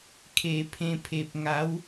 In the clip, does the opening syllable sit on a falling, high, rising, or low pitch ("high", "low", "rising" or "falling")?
low